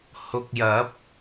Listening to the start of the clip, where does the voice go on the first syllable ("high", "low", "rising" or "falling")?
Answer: low